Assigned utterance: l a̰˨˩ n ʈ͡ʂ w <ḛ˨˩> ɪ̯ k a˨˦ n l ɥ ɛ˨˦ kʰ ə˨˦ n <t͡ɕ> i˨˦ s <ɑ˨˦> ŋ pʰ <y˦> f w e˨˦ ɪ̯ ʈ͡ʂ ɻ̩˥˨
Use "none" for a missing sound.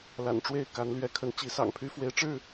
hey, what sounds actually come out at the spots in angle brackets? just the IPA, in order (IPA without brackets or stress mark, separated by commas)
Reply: e˥˨, t͡ɕ, ɑ̰˨˩, y˦